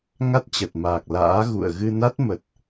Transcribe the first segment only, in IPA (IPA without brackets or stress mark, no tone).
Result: ŋ